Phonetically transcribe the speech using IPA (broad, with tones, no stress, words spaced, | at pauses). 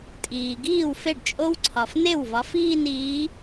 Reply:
tʼiː˩ɡiː˥˩w fe˥˩ɖt͡ʃʼo˦˥wǀʰɒ˩f ne˥˩wvɒ˨˦ fiː˥˧niː˨˦